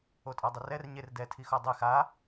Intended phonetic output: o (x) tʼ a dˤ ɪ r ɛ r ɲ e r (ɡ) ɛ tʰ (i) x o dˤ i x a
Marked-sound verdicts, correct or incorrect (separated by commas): incorrect, incorrect, correct